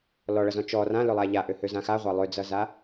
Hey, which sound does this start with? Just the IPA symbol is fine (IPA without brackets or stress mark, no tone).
l